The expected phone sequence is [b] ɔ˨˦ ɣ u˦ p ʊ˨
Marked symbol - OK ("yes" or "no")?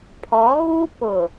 no